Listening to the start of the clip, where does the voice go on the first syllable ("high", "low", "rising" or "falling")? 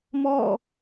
falling